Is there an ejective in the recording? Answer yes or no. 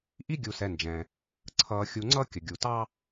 no